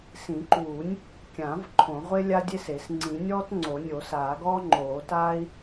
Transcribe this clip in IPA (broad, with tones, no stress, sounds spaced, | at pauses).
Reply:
s ĩ˨˩˦ ǃ uː˨˩˦ nʲ | kʲ ã˨˩˦ v ǃʰ õ˨˩˦ ʁʷ e˥ lʲ a˥ dʲ e˥ s e˨˩˦ s ŋ͡ǀ ĩ˨˩˦ nʲ ɔː˥ t ŋ͡ǀ o˨˩˦ nʲ o˨˩˦ s aː˨˩˦ ɡ ɔː˥ ŋ͡ǃ oː˨˩˦ t aː˥ i̯